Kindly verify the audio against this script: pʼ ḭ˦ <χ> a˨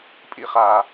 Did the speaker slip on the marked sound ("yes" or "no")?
no